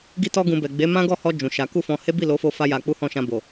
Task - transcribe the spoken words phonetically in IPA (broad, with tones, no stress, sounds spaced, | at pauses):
ɡ i˧ t ɔ˧ ɡ ũ˨ b ɛ˨ ɡ͡b e˨˦ m ã˦ ɡ ɔ˦˨ h ɔ˧ d͡ʒ ũ˨ ʃ a˨˦ k u˦˨ f ɔ̃˧ h e˦ b i˦˨ l o˨˦ f o˧ f a˦ j a˧ k͡p u˦ h ɔ̃˦˨ ʃ ã˧ b o˨